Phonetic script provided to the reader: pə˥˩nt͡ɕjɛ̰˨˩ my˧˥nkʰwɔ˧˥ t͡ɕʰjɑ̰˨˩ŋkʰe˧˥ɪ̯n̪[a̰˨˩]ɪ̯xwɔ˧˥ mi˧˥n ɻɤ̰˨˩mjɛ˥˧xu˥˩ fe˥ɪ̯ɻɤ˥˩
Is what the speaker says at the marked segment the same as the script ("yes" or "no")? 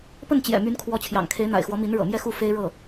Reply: yes